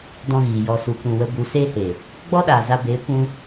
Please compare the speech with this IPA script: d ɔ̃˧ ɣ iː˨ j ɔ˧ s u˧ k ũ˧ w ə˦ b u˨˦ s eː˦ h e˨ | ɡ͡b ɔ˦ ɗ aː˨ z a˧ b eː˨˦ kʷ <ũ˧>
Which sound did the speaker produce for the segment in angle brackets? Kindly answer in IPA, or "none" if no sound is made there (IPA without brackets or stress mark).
ũ˦